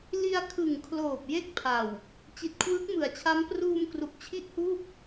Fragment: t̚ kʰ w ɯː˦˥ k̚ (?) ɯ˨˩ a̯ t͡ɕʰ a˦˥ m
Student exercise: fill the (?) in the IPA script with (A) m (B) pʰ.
A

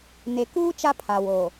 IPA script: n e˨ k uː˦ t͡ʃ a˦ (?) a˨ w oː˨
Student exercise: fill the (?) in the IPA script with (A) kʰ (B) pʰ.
B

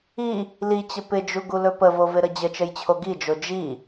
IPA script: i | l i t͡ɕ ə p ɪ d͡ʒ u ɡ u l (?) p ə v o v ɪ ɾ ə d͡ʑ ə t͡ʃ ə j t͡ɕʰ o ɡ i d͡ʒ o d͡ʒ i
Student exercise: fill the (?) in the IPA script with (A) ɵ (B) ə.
A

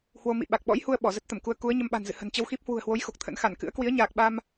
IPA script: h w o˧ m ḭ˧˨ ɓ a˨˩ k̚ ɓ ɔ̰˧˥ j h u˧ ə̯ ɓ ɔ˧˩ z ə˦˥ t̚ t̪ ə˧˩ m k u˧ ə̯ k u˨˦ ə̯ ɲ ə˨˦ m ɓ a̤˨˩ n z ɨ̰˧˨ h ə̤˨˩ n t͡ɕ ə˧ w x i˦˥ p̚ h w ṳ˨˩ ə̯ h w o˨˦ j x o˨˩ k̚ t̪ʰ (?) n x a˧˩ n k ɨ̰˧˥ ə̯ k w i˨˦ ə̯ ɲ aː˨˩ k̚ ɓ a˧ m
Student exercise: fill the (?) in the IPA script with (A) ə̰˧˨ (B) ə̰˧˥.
B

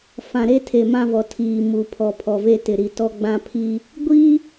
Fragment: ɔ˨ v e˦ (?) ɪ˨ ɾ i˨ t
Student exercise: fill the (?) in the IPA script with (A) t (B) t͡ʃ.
A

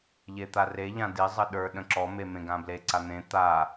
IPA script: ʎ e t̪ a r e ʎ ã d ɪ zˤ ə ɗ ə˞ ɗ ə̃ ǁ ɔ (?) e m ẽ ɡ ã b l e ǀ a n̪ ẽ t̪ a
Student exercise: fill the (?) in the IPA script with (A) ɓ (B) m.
B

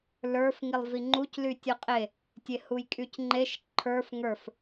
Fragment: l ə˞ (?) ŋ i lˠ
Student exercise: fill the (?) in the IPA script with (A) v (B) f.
B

